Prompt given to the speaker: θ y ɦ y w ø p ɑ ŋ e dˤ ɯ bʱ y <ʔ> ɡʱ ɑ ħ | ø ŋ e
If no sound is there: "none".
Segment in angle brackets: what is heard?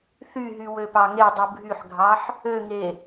ħ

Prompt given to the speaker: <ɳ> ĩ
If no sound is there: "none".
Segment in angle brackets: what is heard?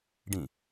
ɖ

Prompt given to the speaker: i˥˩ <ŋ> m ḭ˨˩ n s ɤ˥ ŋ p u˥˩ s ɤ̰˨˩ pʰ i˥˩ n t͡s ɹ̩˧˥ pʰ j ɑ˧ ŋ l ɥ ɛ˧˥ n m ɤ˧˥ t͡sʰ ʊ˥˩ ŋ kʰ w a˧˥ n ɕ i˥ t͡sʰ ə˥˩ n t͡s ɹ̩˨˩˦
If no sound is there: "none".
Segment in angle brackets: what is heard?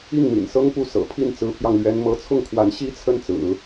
ŋ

